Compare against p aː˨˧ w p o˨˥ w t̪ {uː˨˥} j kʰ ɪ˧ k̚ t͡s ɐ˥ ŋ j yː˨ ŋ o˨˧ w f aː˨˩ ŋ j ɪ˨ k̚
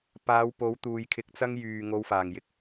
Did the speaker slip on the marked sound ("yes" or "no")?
yes